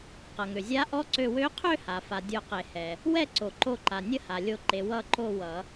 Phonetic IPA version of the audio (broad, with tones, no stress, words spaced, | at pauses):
qʌ˩ŋø˩zʲa˧˥ ʔɔ˧˥ǀø˧˩ wø˧˥qʰø˥˨ha˩ fa˩dʲo˨˩˦qe˩hɛ˩ | wɛ˥˨ǀo˩ǃo˧˩ǃa˩ nʲə˥˨ha˩ lʲo˧˩ǃe˩ wʌ˧˩ ǃo˥˨ wʌ˨˩˦